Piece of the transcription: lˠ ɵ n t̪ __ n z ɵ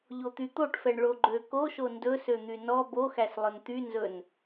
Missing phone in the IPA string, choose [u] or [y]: y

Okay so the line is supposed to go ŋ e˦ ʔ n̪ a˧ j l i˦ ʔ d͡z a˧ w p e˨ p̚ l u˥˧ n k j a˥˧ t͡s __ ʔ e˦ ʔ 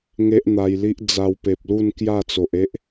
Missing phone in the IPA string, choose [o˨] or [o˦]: o˨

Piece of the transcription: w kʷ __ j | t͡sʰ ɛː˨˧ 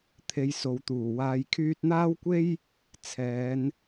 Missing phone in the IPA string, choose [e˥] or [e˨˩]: e˥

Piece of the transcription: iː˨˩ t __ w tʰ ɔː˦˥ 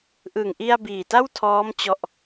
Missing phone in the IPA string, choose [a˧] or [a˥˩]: a˥˩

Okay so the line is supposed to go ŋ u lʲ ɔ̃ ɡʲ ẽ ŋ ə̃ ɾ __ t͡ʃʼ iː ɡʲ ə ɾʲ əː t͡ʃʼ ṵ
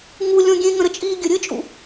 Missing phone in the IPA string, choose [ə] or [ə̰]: ə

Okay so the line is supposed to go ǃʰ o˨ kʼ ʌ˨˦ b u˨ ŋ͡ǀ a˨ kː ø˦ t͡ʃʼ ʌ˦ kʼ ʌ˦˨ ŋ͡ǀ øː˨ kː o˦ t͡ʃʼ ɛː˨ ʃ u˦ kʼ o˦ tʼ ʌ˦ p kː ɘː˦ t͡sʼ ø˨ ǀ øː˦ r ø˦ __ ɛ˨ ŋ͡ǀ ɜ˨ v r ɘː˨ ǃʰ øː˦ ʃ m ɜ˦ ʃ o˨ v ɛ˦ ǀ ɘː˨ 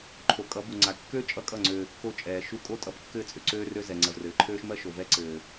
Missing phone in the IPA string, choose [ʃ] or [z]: z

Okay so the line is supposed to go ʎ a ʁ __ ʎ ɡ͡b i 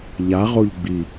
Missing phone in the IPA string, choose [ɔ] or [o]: o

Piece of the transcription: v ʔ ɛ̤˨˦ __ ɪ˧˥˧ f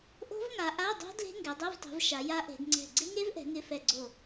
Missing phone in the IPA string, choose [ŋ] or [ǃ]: ŋ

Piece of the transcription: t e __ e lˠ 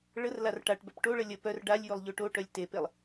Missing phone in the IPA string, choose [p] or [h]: p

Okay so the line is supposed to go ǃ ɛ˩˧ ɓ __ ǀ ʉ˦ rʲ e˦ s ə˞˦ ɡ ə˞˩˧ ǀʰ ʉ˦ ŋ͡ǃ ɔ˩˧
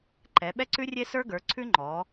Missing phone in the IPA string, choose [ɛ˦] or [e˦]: ɛ˦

